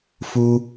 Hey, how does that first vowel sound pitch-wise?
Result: high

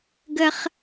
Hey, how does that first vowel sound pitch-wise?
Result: high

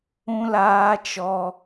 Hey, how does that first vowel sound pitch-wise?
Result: high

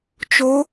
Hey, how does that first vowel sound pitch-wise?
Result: rising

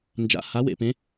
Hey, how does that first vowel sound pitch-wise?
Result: rising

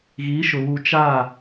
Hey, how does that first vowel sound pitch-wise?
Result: rising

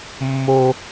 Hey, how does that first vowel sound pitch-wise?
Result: high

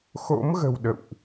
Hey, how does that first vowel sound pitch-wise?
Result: rising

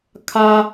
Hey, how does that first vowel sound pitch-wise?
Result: high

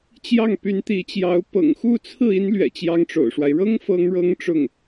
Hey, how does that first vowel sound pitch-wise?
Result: falling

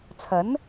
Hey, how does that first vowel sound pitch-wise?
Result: rising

